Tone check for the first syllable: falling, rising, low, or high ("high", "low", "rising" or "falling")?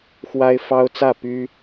high